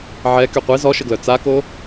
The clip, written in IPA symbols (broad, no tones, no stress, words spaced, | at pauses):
ʕɛ kyqʷi zɔʃəɡlœ t͡sako